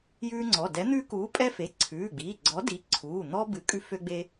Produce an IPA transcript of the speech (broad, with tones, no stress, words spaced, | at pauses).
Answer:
jʉː˦ŋ͡ǀɔ˩˧˩ dɛ˨˥ n̪ʉː˦kuː˨˥ pʼɛ˦fe˩˧˩ ǀʰʉː˩˧˩ɡ͡biː˩˧˩ɡ͡ǀɔ˨˥ di˨˥ ǀʰuː˩˧˩n̪ɔ˦ bɨ˨˥kʼʉ˦fø˦ɡ͡be˦